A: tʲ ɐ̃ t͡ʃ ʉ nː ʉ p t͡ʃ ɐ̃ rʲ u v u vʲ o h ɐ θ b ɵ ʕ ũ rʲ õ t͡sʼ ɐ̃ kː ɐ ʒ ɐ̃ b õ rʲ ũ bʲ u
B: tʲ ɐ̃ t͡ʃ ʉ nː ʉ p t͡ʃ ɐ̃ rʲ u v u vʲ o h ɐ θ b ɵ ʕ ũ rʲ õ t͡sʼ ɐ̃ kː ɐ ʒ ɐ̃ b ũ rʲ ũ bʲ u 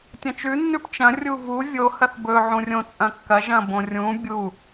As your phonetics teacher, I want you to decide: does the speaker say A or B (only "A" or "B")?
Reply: A